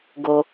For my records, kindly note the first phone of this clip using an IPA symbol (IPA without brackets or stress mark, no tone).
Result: ɡ